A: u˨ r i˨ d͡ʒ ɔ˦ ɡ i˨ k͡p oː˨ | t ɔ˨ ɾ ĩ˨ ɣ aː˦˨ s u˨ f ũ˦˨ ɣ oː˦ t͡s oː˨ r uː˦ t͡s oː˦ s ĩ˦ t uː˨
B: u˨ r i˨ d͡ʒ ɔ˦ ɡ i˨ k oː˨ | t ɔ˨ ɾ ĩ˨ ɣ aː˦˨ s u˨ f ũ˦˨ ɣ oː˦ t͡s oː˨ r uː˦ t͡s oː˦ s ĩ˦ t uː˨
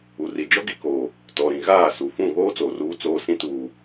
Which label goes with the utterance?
B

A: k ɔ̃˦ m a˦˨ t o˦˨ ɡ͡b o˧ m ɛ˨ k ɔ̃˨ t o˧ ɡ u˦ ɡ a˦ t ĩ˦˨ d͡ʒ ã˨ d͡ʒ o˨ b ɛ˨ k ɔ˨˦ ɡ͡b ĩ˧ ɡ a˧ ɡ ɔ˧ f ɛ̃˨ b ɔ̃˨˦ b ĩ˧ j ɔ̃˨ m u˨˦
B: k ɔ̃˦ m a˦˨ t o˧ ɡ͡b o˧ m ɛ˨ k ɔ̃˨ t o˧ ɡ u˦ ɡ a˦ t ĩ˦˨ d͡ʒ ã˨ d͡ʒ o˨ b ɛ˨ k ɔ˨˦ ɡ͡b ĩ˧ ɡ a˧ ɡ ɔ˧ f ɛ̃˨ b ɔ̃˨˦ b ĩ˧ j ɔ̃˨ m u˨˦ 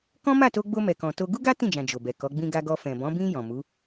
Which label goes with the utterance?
B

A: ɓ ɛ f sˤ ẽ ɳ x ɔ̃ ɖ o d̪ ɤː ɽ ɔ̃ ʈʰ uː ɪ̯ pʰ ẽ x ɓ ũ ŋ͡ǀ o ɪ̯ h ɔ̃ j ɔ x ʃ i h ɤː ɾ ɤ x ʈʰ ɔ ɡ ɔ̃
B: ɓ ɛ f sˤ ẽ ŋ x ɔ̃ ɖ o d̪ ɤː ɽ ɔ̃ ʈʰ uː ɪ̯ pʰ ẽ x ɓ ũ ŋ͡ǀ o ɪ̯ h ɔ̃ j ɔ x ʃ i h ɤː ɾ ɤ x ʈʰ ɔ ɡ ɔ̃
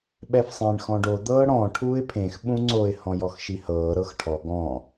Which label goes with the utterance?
A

